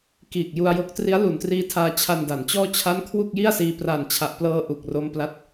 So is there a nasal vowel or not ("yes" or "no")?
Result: no